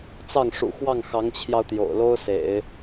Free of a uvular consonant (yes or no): yes